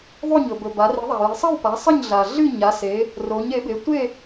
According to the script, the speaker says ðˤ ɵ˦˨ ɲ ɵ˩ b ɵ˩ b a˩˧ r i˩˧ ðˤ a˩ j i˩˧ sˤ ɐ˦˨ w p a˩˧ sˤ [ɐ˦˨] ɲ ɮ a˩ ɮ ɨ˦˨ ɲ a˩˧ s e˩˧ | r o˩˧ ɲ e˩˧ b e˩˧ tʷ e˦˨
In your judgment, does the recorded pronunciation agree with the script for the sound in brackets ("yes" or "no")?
yes